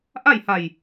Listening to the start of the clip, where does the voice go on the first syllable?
falling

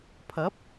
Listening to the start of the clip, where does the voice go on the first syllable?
rising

